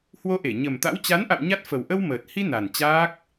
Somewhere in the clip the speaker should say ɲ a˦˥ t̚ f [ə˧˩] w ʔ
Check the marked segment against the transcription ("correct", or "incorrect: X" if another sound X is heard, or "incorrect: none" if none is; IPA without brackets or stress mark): incorrect: ə˨˩